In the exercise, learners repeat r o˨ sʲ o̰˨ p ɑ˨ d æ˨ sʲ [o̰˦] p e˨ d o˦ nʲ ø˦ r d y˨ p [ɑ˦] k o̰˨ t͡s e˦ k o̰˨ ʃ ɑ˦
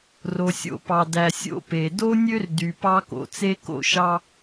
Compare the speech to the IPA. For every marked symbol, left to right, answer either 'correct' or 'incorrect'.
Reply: correct, correct

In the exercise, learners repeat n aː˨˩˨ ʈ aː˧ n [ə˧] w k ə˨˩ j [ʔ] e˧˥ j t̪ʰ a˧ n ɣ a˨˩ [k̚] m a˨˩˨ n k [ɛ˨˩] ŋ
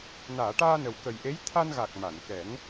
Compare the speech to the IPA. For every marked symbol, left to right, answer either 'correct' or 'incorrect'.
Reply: incorrect, correct, correct, incorrect

